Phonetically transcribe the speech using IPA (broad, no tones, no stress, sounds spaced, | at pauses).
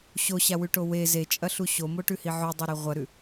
ɕ o ɕ a w ʉ ʈ o w e z e t͡ʃʼ ɐ ɬ u ɕ o m o ʈ ʉ h i ʕ ʉ dˤ o ɾ e ʁʷ ɐ ɾ ʉ